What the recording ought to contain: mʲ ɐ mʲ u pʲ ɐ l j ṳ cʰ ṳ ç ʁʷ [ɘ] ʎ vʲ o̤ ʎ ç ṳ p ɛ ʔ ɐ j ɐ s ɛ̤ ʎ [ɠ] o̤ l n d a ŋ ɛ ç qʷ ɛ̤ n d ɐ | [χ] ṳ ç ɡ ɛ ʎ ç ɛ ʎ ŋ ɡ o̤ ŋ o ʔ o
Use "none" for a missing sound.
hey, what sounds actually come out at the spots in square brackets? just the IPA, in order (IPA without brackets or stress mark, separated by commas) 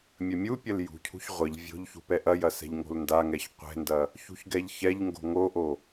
ɘ, ŋ, ç